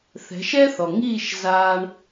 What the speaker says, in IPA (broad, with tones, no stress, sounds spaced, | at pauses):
θ ɛ̤˩˥ ʃ ɛ˥ θ ɔ˩ ŋ iː˥˩ ʃ z aː˧ ɳ